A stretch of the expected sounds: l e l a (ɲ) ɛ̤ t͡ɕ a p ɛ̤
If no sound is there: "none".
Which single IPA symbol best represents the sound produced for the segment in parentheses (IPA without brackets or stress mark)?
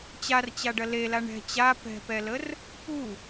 ɳ